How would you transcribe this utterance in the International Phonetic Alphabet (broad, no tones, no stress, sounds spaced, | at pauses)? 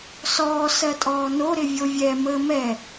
s ɔː s ɜ tʼ ɔː n o ɾ ɪ vʲ o vʲ ɛ m əː m ɛ